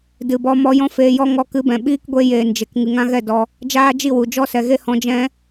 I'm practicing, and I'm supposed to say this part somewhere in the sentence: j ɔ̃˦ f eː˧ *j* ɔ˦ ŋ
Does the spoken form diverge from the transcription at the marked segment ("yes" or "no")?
no